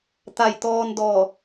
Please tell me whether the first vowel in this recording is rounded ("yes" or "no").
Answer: no